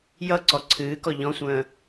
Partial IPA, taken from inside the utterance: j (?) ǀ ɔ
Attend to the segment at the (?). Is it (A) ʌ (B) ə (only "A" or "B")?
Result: A